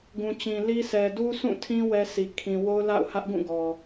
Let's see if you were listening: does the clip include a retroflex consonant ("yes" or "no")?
no